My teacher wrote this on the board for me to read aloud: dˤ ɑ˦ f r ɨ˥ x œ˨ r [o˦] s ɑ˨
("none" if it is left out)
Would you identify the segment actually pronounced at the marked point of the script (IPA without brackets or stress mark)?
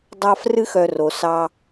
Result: o˩